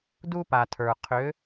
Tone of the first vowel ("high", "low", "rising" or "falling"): high